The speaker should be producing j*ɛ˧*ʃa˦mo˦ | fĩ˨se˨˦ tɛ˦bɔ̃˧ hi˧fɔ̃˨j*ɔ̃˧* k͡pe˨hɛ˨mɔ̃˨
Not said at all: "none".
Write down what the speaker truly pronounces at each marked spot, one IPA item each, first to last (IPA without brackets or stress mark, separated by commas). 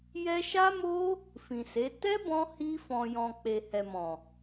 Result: ɛ˧, ɔ̃˨